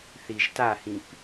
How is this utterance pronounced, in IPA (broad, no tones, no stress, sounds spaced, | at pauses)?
θ i ʒ t a h ĩ p